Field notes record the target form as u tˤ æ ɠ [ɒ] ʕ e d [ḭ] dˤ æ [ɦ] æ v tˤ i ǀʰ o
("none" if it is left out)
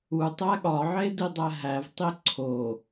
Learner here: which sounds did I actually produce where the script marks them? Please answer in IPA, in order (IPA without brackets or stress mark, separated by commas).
ɒ, i, ɦ